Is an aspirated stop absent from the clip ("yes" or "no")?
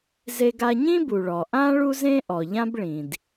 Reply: yes